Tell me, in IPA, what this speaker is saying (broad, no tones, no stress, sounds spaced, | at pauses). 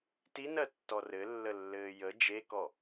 t i n ɜ tː ɔ r ɘ lː ə lː ɘː j ə d͡ʒ e k ɔ